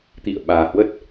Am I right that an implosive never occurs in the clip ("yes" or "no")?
no